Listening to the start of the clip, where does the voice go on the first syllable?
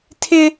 high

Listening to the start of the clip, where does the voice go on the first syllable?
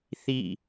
falling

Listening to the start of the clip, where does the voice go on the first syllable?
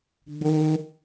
high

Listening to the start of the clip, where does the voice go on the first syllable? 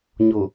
low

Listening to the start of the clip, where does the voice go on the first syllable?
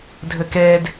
high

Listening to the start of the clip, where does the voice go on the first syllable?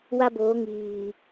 high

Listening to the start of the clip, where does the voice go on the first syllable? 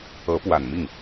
rising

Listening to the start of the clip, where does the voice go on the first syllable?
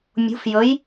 rising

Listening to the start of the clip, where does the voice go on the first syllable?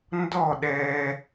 falling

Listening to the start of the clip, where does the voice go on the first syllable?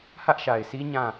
high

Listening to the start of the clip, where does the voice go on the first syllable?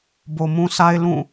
low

